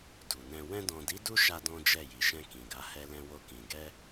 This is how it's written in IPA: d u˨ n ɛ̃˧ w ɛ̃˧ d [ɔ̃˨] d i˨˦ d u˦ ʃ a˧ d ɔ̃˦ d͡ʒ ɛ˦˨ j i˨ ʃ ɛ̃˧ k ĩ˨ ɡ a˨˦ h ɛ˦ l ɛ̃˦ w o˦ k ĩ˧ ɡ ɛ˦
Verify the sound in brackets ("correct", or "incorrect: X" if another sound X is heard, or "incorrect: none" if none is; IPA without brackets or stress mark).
correct